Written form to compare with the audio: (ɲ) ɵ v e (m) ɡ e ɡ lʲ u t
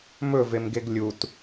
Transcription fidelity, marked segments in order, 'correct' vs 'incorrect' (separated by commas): incorrect, correct